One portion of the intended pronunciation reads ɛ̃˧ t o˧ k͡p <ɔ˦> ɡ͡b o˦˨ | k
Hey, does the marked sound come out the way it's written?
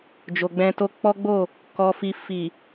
yes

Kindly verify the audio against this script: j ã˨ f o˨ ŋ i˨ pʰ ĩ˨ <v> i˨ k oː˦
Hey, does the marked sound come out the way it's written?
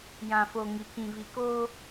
yes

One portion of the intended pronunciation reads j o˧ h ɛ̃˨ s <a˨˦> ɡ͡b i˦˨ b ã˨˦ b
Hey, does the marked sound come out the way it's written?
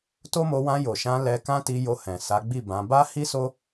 yes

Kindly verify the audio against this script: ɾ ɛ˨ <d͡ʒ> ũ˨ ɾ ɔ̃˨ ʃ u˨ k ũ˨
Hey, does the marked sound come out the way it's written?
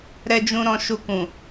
yes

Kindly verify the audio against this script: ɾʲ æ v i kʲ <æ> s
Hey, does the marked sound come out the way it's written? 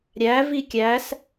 yes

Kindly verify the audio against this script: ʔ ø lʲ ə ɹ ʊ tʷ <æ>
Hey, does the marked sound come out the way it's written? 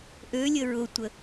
no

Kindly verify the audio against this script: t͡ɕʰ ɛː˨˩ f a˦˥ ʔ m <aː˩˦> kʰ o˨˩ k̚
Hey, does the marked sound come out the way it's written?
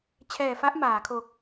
yes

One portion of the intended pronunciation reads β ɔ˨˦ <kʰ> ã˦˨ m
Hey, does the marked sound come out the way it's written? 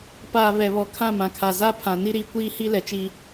yes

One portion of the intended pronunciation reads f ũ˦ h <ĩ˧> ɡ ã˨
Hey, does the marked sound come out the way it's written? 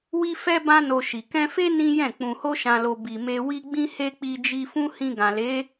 yes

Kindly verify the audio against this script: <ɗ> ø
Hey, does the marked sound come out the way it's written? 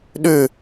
yes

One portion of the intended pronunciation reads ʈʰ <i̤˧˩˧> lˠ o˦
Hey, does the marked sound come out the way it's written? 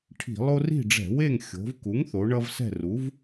yes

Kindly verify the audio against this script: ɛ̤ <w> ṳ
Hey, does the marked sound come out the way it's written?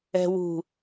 yes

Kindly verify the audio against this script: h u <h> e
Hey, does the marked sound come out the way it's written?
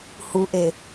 no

